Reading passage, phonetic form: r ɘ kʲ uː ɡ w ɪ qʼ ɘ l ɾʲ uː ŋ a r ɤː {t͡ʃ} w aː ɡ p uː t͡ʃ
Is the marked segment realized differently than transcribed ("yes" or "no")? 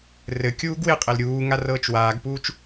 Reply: no